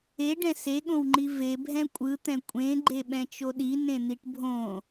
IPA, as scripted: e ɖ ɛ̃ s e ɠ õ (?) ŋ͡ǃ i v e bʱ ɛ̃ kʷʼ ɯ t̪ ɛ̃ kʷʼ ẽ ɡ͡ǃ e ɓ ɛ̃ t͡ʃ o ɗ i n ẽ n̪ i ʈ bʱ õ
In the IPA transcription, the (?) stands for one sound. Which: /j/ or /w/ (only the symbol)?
w